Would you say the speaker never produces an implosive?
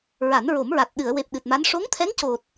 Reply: no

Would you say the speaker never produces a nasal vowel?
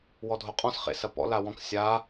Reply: no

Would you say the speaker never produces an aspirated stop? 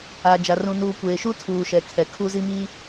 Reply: no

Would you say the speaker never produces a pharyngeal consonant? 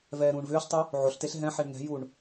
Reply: no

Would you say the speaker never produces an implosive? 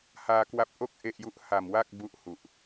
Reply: yes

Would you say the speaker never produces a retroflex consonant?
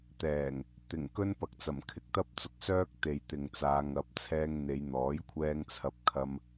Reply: yes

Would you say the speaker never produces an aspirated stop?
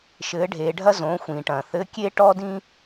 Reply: yes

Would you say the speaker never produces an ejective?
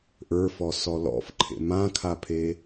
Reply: yes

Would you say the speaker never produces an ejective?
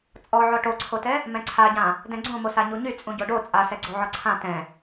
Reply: no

